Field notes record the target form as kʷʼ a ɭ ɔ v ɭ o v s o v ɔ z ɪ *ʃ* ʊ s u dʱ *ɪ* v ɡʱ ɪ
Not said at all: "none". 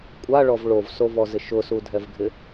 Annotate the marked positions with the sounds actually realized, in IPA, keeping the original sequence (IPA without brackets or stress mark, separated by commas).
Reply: ʃ, ɛ